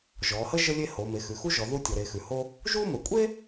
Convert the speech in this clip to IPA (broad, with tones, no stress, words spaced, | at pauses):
ʒɔ˩˧hə˥ ʒə˥lʲe˥ ho˩˧ me˩˧xʉ˩˧xu˥ʒɔ˩˧ ðu˥tʲɔ˩˧ɾe˩˧ xʉ˩˧ho˥ | ʒu˥mə˩˧ kʷʼe˥